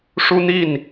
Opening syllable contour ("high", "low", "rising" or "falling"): high